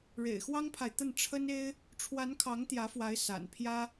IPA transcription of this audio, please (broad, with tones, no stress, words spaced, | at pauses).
ɻḛ˨˩ɪ̯xwɑ˥ŋpʰa˨ɪ̯t̪ə˥˩n ʈ͡ʂʰə˥ne˥ɪ̯ | ʈ͡ʂʰwa˧˥nkʰɑ˧˥ŋt̪jä˧˥fwa˧˥ɪ̯ sa̰˨˩npʰjä˥